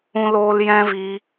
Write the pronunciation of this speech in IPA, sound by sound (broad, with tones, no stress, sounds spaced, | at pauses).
ũ˦ l oː˦ l j ɛ̃˦ v i˧